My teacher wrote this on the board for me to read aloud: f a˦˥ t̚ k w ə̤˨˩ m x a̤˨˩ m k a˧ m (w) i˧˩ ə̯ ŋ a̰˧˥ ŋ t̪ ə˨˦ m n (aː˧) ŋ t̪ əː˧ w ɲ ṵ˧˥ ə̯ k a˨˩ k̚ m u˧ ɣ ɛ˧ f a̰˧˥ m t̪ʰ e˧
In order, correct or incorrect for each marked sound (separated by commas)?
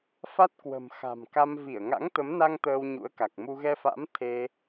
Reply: incorrect, incorrect